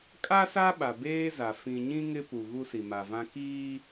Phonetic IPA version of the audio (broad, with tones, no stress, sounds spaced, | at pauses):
kʼ a˦ s a˦ ɓ a˨ b eː˦ z a˨ f ĩ˨ ɲ ĩ˦ ŋ ɪ˦ p u˨ ɣ u˦ s i˨ m a˨ v ã˦ k iː˦